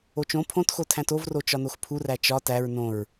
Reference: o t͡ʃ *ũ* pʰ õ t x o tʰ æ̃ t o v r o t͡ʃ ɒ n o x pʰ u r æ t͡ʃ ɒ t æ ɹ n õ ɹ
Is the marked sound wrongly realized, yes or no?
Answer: yes